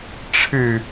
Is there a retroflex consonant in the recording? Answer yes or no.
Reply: yes